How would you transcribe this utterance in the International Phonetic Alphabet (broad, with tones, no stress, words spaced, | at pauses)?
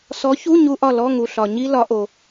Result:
sɔ˨˥çu˧˥˧ ɲu˦˥ʔɒ˥˨ lɔ˧˥˧ ŋu˩ ɬɒ˩ɲi˦˥lɒ˨˩˦ʔo˩